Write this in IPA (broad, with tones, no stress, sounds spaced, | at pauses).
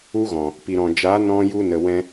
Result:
u˦ ɣ ɔ̃˨ | p i˨ ɾ ɔ̃˨ d͡ʒ aː˨˦ n ɔ̃˧ j u˧ n ə˨ w ɛ̃˧